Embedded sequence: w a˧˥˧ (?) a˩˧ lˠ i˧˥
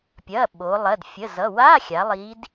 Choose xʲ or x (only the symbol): xʲ